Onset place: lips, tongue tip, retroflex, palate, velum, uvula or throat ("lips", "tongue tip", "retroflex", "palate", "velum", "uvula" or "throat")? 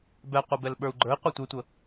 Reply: lips